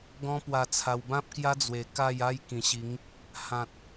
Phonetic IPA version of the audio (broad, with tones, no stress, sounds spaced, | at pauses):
ɡ ɔ̃˦ p w a˧ t͡sʰ a˧ w b ã˦ p̚ k j a˦ d͡z w e˨˩ k a˥˧ j a˦ j k ĩ˨˩ ɕ i˨˦ ŋ | h ã˨ t̚